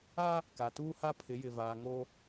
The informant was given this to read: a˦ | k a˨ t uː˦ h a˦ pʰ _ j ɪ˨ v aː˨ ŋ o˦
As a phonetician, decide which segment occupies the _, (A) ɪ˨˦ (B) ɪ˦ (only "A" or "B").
A